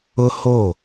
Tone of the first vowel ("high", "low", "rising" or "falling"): high